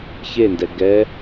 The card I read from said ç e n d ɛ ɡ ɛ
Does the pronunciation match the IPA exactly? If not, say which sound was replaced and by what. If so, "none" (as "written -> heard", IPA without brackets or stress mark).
none